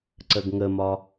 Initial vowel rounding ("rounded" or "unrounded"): unrounded